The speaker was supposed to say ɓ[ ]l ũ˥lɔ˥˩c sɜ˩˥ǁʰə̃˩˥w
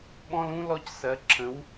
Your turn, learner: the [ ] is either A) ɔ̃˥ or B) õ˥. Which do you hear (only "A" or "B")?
A